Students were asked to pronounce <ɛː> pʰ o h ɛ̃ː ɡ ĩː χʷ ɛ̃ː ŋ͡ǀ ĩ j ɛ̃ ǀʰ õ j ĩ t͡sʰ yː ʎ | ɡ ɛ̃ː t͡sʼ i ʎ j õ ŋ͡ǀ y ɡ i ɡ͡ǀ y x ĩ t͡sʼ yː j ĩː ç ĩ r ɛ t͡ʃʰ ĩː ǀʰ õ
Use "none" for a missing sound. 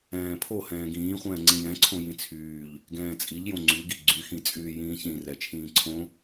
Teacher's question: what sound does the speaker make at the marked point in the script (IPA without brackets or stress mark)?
ɛ̃ː